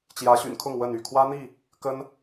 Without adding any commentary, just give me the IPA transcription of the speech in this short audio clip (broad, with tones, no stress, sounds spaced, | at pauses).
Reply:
t͡ɕ j ä˨˦ ɕ y̰˨˩ n kʰ ʊ˥˨ ŋ w ə˥˨ n y˥˨ kʰ w ä˦ n̪ i˥˨ | k ə˦ n